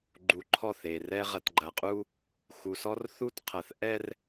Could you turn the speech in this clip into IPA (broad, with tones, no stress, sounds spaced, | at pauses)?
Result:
ɡ͡ǃ u˨ ǃʰ ɔ˦˨ θ e˨ r ɛ˦ ʁ ɐ˨ t ɡ͡ǃ ɐ˨ qʼ u˦ | x u˨ s ɔ˦ r θ u˦˨ t qʰ ɐ˨ θ ʔ ɛ˦ r